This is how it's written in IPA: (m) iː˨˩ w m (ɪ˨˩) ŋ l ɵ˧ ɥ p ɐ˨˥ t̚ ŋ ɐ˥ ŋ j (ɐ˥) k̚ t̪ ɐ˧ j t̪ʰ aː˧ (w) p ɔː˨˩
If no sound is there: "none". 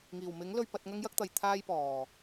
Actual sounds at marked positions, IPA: ŋ, ɪ˨˥, ɐ˥, j

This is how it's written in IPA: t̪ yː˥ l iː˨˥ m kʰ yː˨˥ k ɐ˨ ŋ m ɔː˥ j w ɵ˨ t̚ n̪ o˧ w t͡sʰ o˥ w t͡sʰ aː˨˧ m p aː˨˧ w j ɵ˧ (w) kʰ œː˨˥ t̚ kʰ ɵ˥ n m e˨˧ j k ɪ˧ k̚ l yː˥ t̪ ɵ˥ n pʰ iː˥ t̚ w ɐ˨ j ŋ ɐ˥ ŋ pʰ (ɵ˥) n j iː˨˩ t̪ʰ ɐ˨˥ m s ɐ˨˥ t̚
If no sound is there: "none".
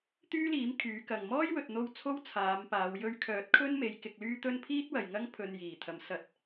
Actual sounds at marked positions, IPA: ɥ, ɵ˧

